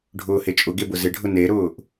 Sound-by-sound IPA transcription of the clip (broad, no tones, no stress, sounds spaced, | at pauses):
ɖʱ ʊː h e t͡ʃʼ ʊ ɡ e b ʊ z ɪ ɖʱ ʊ n e ɾ ʊː ʔ